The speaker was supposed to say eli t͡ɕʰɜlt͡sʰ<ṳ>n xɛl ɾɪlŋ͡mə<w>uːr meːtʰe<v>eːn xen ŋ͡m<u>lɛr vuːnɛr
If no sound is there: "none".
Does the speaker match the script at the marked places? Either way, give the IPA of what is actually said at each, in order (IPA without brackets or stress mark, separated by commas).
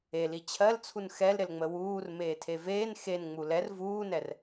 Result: u, w, v, u